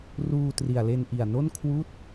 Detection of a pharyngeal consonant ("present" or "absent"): absent